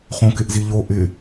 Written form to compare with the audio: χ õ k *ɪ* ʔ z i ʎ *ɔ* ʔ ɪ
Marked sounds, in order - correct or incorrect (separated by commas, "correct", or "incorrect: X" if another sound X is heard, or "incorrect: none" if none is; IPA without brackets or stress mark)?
correct, incorrect: o